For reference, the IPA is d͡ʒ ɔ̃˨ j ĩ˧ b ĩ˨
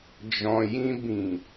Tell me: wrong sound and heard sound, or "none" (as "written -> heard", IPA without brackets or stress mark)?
none